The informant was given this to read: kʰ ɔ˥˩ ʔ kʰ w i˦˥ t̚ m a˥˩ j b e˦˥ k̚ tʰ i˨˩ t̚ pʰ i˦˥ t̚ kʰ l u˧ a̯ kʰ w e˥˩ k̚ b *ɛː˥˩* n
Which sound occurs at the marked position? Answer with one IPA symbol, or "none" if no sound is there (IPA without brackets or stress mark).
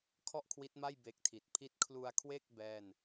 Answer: ɛː˥˩